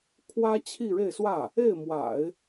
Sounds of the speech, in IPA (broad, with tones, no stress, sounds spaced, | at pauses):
kʰ w ä˥ t͡ɕʰ i˥˧ ɻ e˥˧ ɪ̯ s w ä˥˩ | e˥˩ ɪ̯ m w a̰˨˩˦ ɪ̯